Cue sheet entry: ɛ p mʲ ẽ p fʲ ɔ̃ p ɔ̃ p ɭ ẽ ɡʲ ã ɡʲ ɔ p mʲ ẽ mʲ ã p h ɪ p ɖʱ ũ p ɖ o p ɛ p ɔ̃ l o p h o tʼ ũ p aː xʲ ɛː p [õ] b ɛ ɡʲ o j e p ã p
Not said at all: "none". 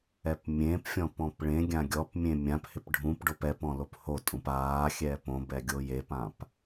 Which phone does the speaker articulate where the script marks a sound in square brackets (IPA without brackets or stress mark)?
õ